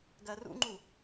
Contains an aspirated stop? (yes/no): no